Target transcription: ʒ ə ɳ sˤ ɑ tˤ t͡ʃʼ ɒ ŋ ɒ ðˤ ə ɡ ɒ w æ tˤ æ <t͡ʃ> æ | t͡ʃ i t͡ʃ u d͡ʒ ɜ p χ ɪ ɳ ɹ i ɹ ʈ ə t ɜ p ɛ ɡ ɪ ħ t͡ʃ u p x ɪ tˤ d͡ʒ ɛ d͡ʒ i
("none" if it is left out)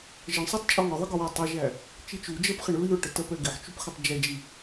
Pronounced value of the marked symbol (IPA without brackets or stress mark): ʒ